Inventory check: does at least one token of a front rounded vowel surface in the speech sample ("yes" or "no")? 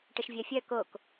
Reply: yes